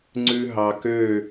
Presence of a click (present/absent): present